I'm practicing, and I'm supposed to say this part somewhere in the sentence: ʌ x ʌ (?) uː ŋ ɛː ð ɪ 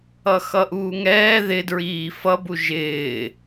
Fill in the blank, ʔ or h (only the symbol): ʔ